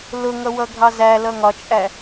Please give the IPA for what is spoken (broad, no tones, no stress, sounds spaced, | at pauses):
l ʊ ŋ ʌ w ʌ ɡʱ ɑ z æ l ʌ ŋ ɒ t͡ʃʼ æ